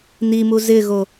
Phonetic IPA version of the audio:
n i m u z ɪ ɣ o

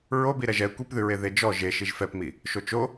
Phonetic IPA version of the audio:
ɹ o b i ɾ ɛ ʒ ɛ kʷ i p ð ʉ ɹ e ð e d͡ʒ ɔ ʒ e ʃ i ʒ f ɛ p m i | ʃ o t͡ʃ o

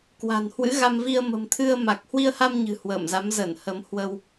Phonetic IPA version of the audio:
k w a̤˨˩ n h w ɨ̰˧˥ ɣ a˧ m v i˧ ə̯ m ə̤˨˩ m t̪ʰ ɨ˧ ə̯ m a˨˩ k̚ h w i˧ ə̯ h a˧ m ɲ ɨ̤˨˩ h w ə̰ː˧˨ m z a˨˦ m z ə˧˩ n h ə˨˦ m h w ə˧ w

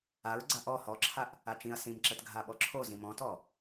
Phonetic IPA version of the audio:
a ɹ ɡ͡ǀ a ʔ ɔ h ɔ ǁʰ a ʔ | a t͡ʃ ĩ ɐ̯ s ĩ m ǁ ə t ɡʱ a ɓ ɔ ǁʰ o z ĩ m ɔ̃ t ɔ

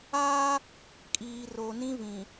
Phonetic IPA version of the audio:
aː˦ | kʼ iː˨ r o˨ n ĩ˦ v ĩ˨

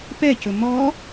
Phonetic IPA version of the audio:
p ɛ c ɵ m ɔ

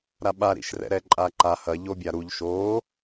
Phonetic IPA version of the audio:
ɾ a ɓ a ɾ ḭ ʃ r ɛ̰ ɾ ɛ ǃʼ a ǃ a h ɐ ʎ o bʲ a ɾ u ʎ ʃ o

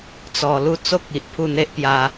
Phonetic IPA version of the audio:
t͡s ɔ˧ l u˦ t͡s o˦ k̚ i˨ ʔ pʰ u˥˧ n̪ e˦ ʔ p j a˧

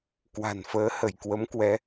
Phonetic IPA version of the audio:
k w a̤˨˩ n f əː˨˦ h ə˧˩ j k w ə˨˦ m k w ɛ˨˦

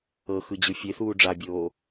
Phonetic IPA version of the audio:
ɤ x ɯ d͡ʑ ɯ fʲ e θ uː ɖ͡ʐ a bʲ oː

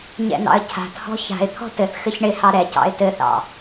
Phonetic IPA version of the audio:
ɲ ɛ̰ n̪ ɑ̰ ə̯ cʰ a̤ t h ɔ̤ ç a̤ ɪ̯ t̪ʰ ɔ̤ t ɘ θ x ɘ ç ɳ ɪ h ɑ ɾ ɛ c ɑ̰ ɪ̯ t ɘ θ ɑ̰

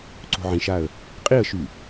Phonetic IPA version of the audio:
ǀ o̤ ʕ ĩ ʃ a ə̯ | qʼ i ə̯ ʃ y

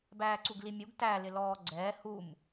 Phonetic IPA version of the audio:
b æː ǀ u ɡ l i mʲ u ɡ t æ l ɪ l ɔː ɡ͡ǀ ɛː h u m

